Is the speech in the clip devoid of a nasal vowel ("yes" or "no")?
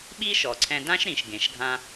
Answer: no